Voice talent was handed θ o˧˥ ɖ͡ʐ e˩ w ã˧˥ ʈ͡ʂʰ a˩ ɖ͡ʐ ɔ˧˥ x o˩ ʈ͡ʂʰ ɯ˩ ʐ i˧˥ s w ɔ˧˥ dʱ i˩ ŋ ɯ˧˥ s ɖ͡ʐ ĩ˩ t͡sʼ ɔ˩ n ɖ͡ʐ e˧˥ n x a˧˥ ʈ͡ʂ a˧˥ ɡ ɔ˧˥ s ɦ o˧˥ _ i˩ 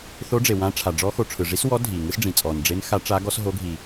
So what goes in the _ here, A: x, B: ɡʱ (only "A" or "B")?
B